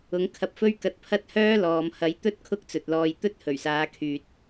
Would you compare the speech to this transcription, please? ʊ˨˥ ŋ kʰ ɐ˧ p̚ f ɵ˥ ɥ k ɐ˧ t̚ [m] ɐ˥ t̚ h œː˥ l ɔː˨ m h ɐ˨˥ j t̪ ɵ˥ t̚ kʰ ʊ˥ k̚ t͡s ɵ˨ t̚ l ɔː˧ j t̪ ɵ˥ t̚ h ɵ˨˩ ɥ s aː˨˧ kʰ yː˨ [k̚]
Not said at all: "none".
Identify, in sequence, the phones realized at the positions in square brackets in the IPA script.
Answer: pʰ, t̚

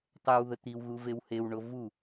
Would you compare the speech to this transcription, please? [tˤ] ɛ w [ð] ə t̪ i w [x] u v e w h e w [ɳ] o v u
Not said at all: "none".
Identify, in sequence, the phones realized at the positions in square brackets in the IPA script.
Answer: tˤ, ð, ɣ, ɳ

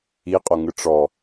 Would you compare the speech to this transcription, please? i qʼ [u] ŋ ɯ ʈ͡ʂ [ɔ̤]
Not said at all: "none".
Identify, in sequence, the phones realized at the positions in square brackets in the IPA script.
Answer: o, ɔ

